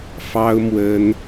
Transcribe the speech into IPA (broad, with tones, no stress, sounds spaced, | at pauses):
f ɑ˥ ʊ̯ m w ə˥ n